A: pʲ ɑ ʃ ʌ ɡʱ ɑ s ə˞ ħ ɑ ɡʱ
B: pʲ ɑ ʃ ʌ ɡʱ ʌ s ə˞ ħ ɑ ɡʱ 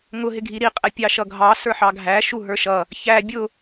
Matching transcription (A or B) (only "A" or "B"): A